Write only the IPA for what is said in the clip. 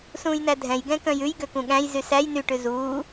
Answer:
sũːjnædʱɛ̃j ɡɛ̃kœ̃jʉj ɡøkũɠæ̃j zysæj nyʈʉ zuː

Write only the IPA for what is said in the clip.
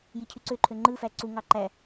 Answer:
jicʰyǀøǃʰø ŋ͡ǃɯfæ ǀuŋɑ ǃæ

